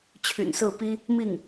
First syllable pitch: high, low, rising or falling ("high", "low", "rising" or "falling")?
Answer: low